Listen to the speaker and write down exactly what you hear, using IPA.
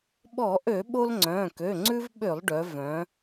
ɓ ɔ˧˩˧ ʔ ø˧˩˧ ɓ o˦ l ŋ͡ǀ œ̃ː˩˧˩ k ø˩˧˩ ŋ͡ǀ ʉ˦ v ɓ ø˧˩˧ lˠ ɖ œ˩˧ v œ̃˩˧

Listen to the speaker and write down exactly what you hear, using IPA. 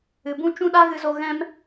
ɨ˨ b ũ˦ t͡ʃ ũ˦ ɗ a˦ ɣ ɨ˧ z o˧ ɣ ɛ̃˦ m

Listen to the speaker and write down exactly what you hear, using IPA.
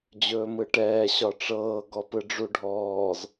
d͡ʑ ɵː m ɯ ʈ ɛː ɕ ɒ ʈ͡ʂ ɤː ɡ ɔ p ɯ ɖ͡ʐ u ɖʱ ɔː z

